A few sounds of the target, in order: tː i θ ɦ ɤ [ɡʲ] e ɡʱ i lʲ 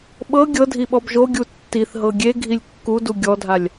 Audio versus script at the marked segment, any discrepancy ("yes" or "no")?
no